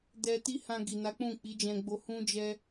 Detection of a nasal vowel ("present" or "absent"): present